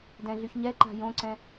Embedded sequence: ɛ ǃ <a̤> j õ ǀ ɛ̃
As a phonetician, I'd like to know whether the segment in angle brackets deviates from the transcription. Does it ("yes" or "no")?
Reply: no